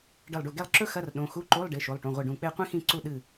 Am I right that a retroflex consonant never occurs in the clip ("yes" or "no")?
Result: no